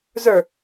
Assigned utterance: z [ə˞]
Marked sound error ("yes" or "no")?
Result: no